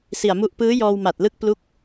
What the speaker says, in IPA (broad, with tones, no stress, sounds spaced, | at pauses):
s i˨˩ a̯ m u˦˥ ʔ p ɯː˦˥ j ɔː˧ w m a˨˩ t̚ l ɯ˦˥ k̚ p l u˦˥ k̚